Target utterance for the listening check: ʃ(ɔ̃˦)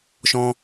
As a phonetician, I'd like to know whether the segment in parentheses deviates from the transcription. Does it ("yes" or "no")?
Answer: no